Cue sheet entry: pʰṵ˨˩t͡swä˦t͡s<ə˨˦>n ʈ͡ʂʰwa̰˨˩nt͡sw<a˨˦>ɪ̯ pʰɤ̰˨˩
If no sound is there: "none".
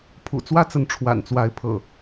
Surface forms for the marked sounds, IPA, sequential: ə˨˦, a˨˦

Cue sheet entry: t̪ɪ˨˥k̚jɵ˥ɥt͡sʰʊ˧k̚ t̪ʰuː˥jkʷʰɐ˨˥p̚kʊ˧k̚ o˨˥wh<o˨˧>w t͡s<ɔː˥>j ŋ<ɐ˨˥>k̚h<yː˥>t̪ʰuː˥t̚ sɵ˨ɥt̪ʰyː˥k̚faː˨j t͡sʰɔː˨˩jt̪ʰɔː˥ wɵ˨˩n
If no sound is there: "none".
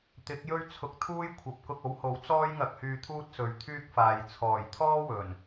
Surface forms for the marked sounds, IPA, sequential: o˨˥, ɔː˥, ɐ˧, yː˧

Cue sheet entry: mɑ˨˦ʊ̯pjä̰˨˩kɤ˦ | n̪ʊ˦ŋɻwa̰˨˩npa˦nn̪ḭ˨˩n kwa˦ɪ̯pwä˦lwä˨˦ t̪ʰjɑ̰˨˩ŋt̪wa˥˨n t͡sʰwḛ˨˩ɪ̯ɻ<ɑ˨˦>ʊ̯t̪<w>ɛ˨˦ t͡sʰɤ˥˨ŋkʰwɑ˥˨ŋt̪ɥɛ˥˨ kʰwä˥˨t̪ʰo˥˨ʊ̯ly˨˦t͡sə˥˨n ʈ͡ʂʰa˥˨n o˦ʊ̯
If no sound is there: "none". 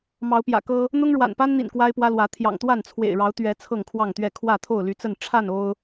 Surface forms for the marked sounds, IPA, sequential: ɑ˨˦, ɥ

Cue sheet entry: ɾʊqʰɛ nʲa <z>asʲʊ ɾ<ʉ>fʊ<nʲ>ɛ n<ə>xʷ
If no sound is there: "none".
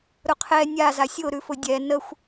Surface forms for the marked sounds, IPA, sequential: z, ʉ, dʲ, ə

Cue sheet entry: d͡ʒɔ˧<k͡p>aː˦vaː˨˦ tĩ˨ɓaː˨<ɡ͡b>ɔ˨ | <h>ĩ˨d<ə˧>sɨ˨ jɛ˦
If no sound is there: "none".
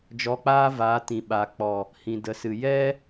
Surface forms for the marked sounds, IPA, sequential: k͡p, k͡p, h, ə˨

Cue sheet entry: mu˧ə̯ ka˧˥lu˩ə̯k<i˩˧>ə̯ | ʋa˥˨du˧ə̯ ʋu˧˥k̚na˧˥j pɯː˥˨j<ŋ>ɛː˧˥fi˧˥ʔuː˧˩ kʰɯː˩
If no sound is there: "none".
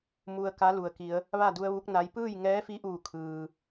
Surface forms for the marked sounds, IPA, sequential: i˩˧, ŋ

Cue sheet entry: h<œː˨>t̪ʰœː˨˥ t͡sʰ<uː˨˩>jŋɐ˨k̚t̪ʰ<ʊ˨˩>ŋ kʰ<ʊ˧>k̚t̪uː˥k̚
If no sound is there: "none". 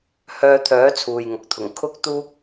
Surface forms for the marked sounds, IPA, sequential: œː˧, uː˨, ʊ˨˩, ʊ˥

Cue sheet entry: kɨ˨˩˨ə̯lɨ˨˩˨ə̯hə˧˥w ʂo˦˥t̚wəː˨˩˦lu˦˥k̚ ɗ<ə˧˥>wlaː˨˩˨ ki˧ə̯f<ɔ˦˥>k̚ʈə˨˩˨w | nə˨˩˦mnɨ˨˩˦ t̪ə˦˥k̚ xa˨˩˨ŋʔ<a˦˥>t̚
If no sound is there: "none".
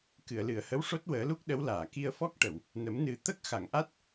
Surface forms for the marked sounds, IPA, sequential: ə˧˥, ɔ˦˥, a˦˥

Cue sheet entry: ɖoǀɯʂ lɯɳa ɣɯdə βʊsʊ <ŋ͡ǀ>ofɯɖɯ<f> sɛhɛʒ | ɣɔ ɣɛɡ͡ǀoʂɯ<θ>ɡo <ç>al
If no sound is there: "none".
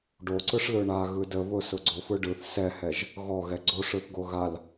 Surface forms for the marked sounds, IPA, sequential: ɡ͡ǀ, θ, θ, ɣ

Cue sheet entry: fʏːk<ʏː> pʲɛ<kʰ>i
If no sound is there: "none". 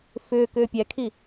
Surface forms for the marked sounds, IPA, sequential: ʏː, kʰ

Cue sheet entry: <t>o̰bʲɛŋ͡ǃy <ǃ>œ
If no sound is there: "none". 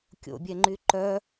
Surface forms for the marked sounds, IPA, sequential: kʲ, ǃ

